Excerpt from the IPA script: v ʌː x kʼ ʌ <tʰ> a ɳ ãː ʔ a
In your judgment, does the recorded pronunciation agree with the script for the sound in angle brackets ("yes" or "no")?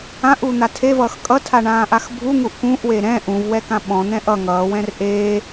yes